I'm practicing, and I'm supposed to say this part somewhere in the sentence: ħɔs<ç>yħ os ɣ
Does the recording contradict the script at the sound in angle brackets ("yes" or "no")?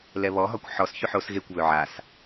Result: no